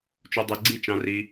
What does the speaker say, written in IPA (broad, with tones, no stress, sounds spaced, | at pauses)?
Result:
t͡ʃ u˧ dˤ e˧ ɡ͡ǀ i˦˨ t͡ʃ ɑ̃˧ r i˧